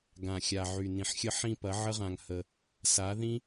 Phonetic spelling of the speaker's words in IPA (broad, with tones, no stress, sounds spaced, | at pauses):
ɡ ã˨ xʲ a˨ ʕ y˨ n ĩ˨ ħ xʲ ə˧ ħ ĩ˧ p ɐ˨˦ ʕ ə˦ ʁ ã˧ ŋ h ə˧ | s a˨˦ ð ĩ˦